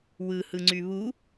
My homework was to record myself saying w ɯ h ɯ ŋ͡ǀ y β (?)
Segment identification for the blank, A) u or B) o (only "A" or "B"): A